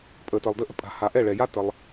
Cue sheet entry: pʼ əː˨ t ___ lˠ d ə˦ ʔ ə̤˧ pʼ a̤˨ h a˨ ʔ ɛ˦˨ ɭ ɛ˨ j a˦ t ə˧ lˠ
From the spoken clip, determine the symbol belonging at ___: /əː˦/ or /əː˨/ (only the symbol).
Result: əː˨